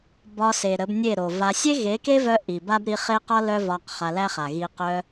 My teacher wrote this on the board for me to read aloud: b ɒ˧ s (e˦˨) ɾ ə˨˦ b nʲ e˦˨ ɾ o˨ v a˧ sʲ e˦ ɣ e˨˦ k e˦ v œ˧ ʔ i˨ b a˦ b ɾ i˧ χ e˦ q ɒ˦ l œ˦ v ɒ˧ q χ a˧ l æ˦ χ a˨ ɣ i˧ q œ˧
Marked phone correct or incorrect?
incorrect: e˨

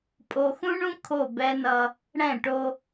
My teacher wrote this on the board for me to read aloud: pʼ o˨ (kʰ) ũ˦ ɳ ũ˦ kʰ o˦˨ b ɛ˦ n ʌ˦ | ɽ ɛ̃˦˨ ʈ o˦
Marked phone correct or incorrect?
incorrect: x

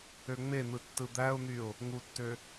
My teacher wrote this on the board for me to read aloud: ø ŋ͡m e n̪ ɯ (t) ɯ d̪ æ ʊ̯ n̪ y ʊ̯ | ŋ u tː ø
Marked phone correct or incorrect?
incorrect: tː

